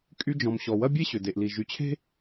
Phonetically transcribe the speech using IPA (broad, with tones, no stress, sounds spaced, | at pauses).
kʼ y˧ d͡ʒ ɔ̃˩ m ɕ ɔ˩ w ɐ˥ bʲ e˥ ɕ ʏ˩ d e˩ ʔ l i˩ ʒ y˩ t͡ɕʰ e̤˥